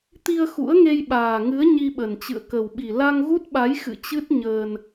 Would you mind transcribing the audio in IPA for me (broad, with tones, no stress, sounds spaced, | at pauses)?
t̪ i˧ ə̯ x ṵ˧˥ ə̯ ŋ e˧ j ɓ aː˨˩ ŋ ɨ˨˦ ə̯ ɲ i˧ ɓ ə˨˩ n t͡ɕ ɨ̰˧˨ ə̯ k ə˨˩ w ɓ i˨˩ l a˧ ŋ ɣ u˦˥ t̚ ɓ a˨˦ j x ɨ̰˧˨ t͡ɕ ɨ˦˥ t̚ ɲ əː˧ n